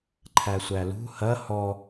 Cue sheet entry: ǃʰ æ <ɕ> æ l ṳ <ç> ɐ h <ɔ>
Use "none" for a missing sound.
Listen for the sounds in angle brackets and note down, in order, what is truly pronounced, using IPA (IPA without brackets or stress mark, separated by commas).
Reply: sʷ, h, ɔ